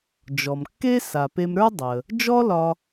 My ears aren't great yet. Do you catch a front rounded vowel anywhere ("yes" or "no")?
no